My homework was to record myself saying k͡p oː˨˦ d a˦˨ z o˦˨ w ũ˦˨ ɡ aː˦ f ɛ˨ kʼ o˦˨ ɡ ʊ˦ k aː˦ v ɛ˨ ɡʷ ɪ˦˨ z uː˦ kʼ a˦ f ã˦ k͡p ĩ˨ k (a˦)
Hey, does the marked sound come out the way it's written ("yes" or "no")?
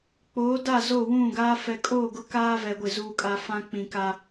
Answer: yes